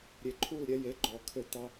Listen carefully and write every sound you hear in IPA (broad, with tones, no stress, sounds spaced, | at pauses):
ɾʲ e˨ ǃʰ u˦˨ l ɾʲ ɛ˧ j e˨˦ ɡ͡ǃ ɔ˨ kʰ ø˧ t̪ ɑ˧